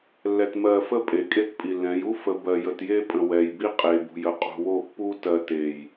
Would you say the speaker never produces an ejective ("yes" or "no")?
no